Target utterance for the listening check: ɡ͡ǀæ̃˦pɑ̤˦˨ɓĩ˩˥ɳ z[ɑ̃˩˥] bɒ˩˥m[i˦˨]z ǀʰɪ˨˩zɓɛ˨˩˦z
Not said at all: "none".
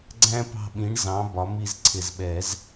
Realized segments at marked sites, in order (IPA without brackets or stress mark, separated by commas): ɑ̃˩˥, i˦˨